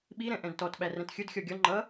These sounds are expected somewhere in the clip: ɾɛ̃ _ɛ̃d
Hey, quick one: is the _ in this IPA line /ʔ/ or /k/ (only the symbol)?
ʔ